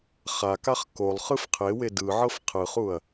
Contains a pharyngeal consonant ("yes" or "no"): yes